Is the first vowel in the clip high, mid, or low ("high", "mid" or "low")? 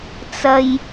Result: low